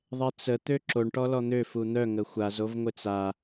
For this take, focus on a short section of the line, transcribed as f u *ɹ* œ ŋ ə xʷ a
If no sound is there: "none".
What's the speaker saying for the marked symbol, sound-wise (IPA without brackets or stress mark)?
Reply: n̪